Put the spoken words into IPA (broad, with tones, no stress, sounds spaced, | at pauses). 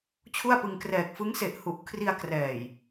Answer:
t͡ɕʰ u˥˩ a̯ p ɯ˧ ŋ k r ɛː˨˩ k̚ f ɯ˦˥ ŋ s e˨˩ ʔ h u˨˩ ʔ kʰ r i˧ a̯ k r ɛː˨˩ j